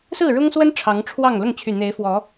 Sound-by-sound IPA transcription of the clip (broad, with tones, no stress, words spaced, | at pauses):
sɹ̩˥˨ɻʊ˦ŋswə˦n ʈ͡ʂʰɑ˨˦ŋʈ͡ʂʰwɑ˥˨ŋ lʊ˥˨ŋt͡ɕʰy˨˩n̪e˨˦ɪ̯fwɔ˨˦